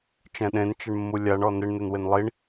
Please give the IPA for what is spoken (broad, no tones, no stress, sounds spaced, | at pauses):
t͡ʃ ɛ̃ ɗ ẽ n t͡ʃ ɪ ɳ mː u lʲ a ɳ ɔ n ɪ ɳ n e n w ɪ n lˠ i ɳ